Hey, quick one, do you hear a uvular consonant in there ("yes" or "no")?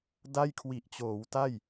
no